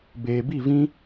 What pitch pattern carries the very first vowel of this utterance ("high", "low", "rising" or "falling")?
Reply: low